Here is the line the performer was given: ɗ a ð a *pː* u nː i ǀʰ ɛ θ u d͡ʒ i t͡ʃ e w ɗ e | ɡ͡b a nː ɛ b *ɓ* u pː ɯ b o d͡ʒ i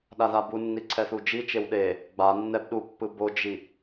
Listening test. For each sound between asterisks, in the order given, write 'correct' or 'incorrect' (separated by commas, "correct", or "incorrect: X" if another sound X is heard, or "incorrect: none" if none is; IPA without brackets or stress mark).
incorrect: b, incorrect: ɗ